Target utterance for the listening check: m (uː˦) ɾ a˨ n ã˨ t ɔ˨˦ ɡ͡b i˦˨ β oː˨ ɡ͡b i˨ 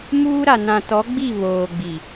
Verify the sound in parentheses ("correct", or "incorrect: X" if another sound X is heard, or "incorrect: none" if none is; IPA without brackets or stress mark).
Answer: correct